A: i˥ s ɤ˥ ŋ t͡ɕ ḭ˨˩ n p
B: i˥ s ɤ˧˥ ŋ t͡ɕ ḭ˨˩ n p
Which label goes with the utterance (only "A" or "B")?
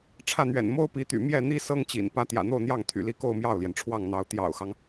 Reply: A